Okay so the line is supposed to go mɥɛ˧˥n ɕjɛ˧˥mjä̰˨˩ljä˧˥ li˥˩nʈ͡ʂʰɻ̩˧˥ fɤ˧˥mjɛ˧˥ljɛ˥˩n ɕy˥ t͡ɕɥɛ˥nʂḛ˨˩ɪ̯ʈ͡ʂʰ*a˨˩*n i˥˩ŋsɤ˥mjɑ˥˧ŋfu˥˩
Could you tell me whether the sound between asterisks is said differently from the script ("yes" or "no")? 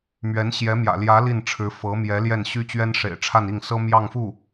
yes